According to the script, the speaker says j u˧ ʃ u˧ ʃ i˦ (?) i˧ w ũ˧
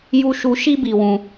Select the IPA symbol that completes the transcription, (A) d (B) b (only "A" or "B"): B